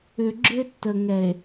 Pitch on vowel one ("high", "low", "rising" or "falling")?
low